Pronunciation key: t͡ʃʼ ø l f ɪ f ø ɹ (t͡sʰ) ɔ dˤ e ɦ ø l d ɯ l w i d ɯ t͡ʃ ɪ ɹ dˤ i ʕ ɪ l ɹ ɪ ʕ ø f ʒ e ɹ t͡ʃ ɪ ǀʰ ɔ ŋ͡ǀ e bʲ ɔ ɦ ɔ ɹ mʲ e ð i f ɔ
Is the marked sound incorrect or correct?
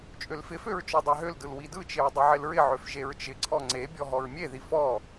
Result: incorrect